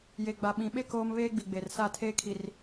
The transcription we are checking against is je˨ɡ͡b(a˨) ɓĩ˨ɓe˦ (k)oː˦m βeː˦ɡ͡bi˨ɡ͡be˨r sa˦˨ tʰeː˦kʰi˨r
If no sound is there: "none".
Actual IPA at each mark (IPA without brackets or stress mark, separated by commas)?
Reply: a˨, k